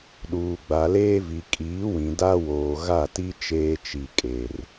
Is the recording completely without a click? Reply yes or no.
yes